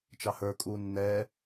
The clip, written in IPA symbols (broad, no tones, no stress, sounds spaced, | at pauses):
t͡ʃ ɑ h ə˞ kʼ uː nː ɛː